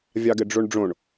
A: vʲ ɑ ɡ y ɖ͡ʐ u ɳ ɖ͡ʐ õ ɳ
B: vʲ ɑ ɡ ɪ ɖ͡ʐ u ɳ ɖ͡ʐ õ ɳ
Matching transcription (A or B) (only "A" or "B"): B